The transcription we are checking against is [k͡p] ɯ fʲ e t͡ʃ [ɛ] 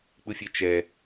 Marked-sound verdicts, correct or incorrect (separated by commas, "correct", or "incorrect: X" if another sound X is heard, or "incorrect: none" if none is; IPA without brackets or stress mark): correct, correct